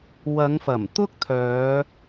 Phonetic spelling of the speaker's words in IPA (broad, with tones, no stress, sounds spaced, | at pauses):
w ɐ˨˧ ŋ f ɐ˨˩ m t̪ ʊ˥ k̚ t̪ʰ œː˨˧